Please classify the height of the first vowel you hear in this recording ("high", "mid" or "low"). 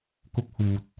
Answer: high